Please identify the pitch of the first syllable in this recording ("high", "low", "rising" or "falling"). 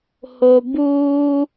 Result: low